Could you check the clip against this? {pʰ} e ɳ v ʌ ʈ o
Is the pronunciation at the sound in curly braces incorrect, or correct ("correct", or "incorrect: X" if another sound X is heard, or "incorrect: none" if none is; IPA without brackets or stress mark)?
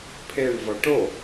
correct